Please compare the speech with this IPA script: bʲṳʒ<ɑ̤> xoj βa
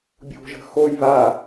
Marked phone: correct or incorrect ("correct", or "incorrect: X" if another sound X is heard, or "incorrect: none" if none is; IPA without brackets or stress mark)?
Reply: incorrect: ə̤